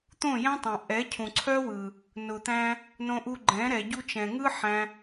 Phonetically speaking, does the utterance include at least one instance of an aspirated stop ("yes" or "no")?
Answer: yes